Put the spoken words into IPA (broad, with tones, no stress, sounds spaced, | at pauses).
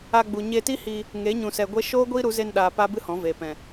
a˧ ɡ͡b u˨ ɲ e˧ t i˦ h i˧ | ŋ e˨˦ ɲ ũ˨ s ɛ˨ ɡʷ e˦ ʃ oː˦ ɡʷ iː˦ ɾ u˨˦ z e˧ n ɗ aː˨ p a˦ b ɨ˦ h ɔ̃˨˦ v eː˨ p ɛ̃˨